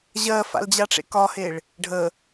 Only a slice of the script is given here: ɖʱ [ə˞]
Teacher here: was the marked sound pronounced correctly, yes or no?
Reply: no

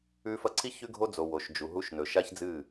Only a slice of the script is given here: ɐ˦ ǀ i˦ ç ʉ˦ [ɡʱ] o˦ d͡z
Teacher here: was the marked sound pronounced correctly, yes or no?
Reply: yes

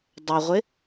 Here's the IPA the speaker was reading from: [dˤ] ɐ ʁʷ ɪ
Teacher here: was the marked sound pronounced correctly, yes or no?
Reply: yes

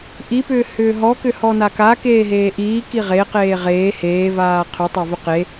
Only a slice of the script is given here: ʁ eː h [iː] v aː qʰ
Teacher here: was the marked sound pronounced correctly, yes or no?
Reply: no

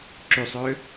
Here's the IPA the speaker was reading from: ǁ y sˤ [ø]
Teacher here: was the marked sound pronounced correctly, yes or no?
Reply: yes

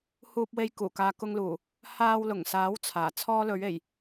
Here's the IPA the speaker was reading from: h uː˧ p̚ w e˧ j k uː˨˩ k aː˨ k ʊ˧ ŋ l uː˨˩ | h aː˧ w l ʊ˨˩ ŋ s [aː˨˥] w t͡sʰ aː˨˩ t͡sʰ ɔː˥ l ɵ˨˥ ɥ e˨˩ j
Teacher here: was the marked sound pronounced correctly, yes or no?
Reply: yes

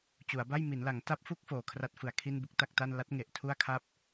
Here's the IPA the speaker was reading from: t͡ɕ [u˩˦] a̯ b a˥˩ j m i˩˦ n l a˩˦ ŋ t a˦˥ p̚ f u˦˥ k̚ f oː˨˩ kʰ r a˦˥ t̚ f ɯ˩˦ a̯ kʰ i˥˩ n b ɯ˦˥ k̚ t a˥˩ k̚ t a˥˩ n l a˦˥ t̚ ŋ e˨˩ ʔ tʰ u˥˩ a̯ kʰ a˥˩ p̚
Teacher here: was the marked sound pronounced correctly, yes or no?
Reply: yes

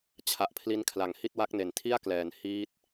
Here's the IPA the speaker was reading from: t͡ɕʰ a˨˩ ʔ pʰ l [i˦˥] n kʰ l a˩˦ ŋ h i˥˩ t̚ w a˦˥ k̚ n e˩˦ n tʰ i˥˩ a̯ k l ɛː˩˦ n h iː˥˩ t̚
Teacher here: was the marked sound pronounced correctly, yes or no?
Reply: yes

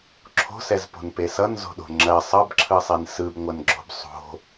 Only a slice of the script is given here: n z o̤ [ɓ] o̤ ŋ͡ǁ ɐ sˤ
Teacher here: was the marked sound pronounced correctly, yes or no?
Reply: no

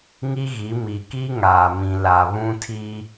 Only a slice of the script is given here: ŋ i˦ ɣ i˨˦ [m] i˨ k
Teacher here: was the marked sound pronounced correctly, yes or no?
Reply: yes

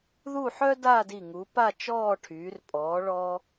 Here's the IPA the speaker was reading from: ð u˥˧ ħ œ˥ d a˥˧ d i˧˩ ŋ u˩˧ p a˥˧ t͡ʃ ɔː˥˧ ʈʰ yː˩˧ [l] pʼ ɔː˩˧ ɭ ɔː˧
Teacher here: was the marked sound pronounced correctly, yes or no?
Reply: no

